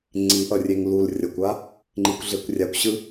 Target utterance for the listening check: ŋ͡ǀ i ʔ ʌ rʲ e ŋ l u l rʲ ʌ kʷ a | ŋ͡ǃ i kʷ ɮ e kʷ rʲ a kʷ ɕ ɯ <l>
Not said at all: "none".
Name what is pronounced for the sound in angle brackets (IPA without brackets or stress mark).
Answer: none